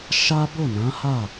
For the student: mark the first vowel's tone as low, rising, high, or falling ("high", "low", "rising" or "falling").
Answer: high